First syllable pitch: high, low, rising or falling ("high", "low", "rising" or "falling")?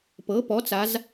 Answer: rising